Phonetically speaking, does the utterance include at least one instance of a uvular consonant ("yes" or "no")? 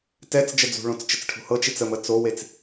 no